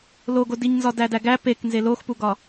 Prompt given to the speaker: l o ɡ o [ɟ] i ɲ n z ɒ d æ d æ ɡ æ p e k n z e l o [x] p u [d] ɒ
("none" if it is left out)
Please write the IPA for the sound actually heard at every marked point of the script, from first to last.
d, x, ɡ

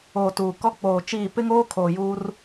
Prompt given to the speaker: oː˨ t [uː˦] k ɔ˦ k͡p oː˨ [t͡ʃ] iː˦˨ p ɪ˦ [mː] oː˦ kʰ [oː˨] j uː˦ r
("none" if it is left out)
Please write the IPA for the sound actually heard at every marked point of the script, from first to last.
uː˨, t͡ʃ, ŋ, oː˨

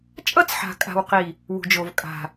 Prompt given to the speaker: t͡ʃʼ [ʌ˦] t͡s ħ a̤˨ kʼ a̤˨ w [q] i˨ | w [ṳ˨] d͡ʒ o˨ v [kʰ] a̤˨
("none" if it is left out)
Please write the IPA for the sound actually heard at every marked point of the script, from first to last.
ʌ˦, q, ṳ˨, kʼ

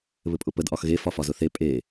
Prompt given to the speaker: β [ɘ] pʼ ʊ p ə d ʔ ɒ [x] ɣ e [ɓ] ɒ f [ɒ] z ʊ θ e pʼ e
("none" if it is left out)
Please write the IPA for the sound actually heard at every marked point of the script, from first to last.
ɘ, x, f, ɒ

